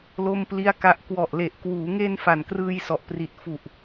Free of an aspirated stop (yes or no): yes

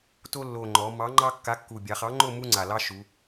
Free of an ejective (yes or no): yes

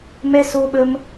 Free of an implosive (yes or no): no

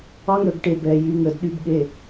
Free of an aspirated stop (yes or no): yes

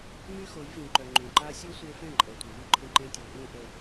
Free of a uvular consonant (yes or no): yes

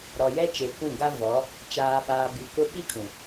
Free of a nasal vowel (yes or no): no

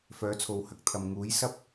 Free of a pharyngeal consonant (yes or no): yes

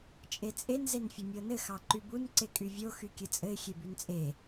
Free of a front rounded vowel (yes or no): no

